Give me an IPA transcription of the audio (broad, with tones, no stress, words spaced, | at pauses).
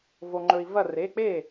vo˩ŋ͡ǃɵ˩i̯ vɐ˧˩re˩˧˩ k͡pe˥˩